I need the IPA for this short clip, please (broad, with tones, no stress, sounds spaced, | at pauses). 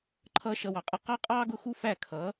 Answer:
ǃʰ ʌ˦ ʃ ʌ˧ w ɑ˨ qʼ ʌ˦˨ q ɑ˦ qʼ ɑː˦ ɡ ʊ˦˨ x u˦ f æ˦˨ kʰ ʌː˨˦